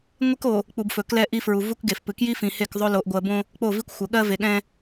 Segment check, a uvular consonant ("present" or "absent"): absent